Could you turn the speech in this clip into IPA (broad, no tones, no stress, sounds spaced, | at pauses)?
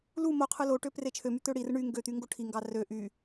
l u m o qʰ ɯ l o ʈ ø p r e t͡ʃʰ ø m y t̪ ø ɽ i r ɯ ɳ y ŋ ɡ ø t̪ y ŋ ɡ o ʈʰ i ŋ ɡ ɑ r ø ʔ y